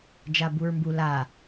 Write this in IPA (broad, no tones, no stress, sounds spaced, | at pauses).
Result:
d͡ʒ a b u ɹ m b u l a